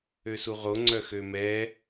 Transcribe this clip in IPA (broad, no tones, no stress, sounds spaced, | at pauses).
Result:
ø s u ʁ o ŋ͡ǀ œ x ø m ɛ